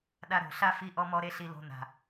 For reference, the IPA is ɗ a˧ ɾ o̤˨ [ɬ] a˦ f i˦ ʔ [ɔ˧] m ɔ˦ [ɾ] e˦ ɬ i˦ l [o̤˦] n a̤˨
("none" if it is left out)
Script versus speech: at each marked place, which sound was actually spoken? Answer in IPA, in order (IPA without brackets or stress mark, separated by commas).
ɬ, ɔ˦, ɾ, o̤˦